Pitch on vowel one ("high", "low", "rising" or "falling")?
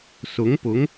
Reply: rising